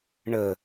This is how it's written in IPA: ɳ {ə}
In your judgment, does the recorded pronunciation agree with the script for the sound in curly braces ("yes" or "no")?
yes